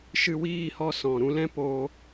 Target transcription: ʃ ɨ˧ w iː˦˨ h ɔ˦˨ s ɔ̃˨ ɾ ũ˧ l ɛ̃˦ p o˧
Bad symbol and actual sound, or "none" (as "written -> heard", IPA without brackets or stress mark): none